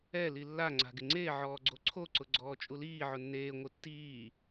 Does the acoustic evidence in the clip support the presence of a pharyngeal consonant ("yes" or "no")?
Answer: yes